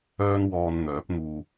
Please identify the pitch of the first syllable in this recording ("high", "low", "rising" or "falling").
high